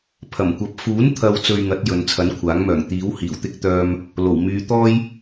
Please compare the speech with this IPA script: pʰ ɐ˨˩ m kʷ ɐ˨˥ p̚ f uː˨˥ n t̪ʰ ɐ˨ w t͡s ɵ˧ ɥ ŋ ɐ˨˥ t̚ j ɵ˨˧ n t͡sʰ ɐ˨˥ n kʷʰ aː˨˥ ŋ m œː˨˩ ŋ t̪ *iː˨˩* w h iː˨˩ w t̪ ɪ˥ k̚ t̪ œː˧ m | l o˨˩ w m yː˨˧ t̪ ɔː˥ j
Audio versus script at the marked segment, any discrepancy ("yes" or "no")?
yes